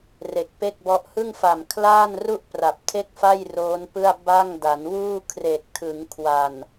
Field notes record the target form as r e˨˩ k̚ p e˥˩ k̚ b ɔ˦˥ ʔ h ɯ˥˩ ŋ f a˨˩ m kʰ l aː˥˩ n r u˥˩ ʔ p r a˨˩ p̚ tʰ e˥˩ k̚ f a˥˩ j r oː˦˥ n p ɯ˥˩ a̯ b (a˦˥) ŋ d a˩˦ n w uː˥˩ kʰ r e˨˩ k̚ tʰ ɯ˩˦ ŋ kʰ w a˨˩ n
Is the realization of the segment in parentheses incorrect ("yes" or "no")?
yes